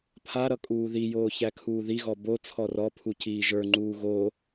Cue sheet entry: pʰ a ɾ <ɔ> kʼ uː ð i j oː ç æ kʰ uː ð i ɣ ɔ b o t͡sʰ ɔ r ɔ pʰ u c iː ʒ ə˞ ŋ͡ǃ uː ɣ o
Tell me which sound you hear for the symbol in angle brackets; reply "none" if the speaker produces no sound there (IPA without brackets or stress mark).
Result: ʌ